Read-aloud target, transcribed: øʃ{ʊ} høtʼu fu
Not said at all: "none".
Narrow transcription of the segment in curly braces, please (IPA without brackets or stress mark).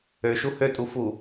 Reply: u